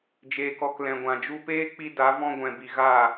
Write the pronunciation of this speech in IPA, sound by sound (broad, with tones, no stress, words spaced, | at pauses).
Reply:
d͡ʒeː˨kɔ˧k lɛ̃˨ɡʷã˨d͡ʒu˧ peː˦k͡pi˧ da˨˦ vɔ̃˧ɡʷɛ̃˨bi˨ ɣa˦˨